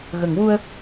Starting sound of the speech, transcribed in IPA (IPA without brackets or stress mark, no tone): ɣ